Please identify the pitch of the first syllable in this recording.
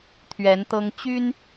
rising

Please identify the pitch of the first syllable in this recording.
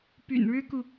low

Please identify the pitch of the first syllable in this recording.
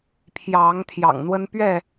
rising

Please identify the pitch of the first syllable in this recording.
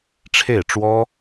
falling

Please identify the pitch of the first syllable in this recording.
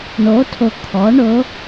rising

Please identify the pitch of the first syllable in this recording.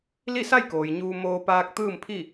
falling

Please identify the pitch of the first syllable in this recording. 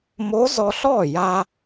rising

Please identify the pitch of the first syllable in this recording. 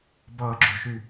low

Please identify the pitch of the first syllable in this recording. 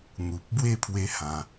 low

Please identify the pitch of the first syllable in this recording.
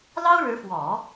high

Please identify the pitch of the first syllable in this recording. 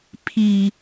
high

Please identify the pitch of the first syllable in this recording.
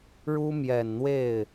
high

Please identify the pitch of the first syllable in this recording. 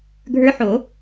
rising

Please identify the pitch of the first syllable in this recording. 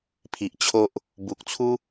low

